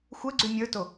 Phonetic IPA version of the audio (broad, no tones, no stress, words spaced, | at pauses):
xʷɛɡ͡ǀy mʲə˞to